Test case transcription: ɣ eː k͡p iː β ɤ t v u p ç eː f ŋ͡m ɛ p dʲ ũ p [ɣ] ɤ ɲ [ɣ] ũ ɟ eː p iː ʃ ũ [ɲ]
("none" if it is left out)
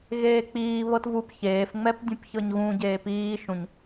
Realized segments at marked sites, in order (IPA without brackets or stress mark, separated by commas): ç, ɣ, ɲ